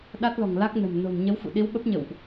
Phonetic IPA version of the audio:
ɗ a˦˥ t̚ l ɔ̤˨˩ ŋ l a˦˥ k̚ n ə̤˨˩ m n o̤˨˩ n ɲ ə˨˦ w f ṵ˧˨ ɗ i˨˦ w ɓ ə˦˥ p̚ ɲ ə̰˧˨ w ʔ

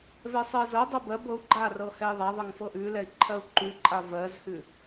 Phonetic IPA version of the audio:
v ɛ sˤ ɜ z ɤ dˤ ɤ b ɜ b ɤ u̯ ɡ͡ǃ a r ɤ h ɛ i̯ ðˤ a ðˤ ɤ ŋ f ɤ ʔ ʉ l ɛ i̯ ǃʰ ɜ u̯ ǃ ʉ ǃʼ a v ɜ z h ʉ

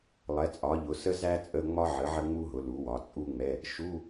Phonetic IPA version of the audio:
lˠ ɛ˩˥ t͡sʼ ɒ˩˥ ʎ ʊ˩˥ s ə˥ z æ˥ t͡sʼ ə˧˥˧ ŋ͡m ɒ˥ ʕ ə˩˥ ʕ ə˥ ŋ͡m u˥ ɦ ʊ˩˥ l u˩˥ w ɒ˩˥ t͡sʼ u˥ ŋ͡m ɛ˧˥˧ | ʃ u˧˥˧

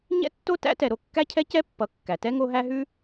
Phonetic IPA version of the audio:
ɲ ɛ̰˥ tː o˥ t æ̰˥ t ɛ˨ ɾ o˦ kː æ˥ cʰ ɛ˥ c ɛ˥ pː ʌ˨ kː æ˩ t ɛ˥ ŋ o˦ ɦ æ˦ ɦ ʉ˦

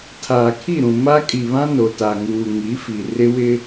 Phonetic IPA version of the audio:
tʰ aː˨ kʰ i˦˨ ɾ ũ˨ m a˦ kʼ i˨ β ã˦ n o˨ t a˨ ŋ uː˨ ŋ i˨˦ f i˨ r ɪ˦ w ɪ˦

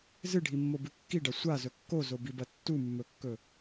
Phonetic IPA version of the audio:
z ɨ ɖʱ i mː o b ʉ kː i ɖ ɐ sʷ a z ɵ kː o z o b i b ɐ tː u mː ɵ kː ɵ

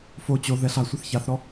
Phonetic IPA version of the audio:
f o t͡ɕ o ð ɛ ɬ a sʷ ɐ θ ç a θ ɾ ɔ

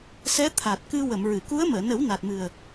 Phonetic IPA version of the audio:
s ɛ˧˥ t̪ʰ a˨˩ t̚ k ɨ˧ w ə˨˩˨ m ɹ ɨ˨˩˨ k u˧˥ ə̯ m əː˨˩˨ n ə˨˩˦ w n a˨˩ t̚ m ɨ˨˩ ə̯

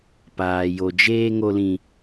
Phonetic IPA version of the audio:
p aː˨ j o˨ d͡ʒ eː˦ ŋ o˦ l ĩ˦

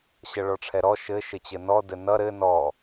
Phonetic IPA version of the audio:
ɕ ʌ ɭ ɔ ʈ͡ʂʰ ɛ ɾ ɔ ʃ ɘ ʃ ɘ t͡ɕ ɘ n ɔ d ɘ n ʌ ɾ ɘ n ɔ

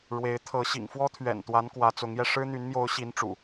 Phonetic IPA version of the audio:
ɻ w e˨˦ ɪ̯ t̪ʰ ɤ˨˦ ɕ ḭ˨˩ ŋ f w ɔ˦ t̪ʰ ɥ ɛ̰˨˩ n t̪ w a˨˦ n k w ä˨˦ t͡s ʊ˨˦ ŋ j ɛ˧ ʂ ɻ̩˦ n̪ y˨˦ n m j o˨˦ ʊ̯ ɕ i˨˦ n ʈ͡ʂ ṵ˨˩

